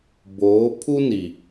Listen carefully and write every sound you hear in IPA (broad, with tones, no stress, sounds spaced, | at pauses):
b oː˨˦ pʰ u˦ n i˨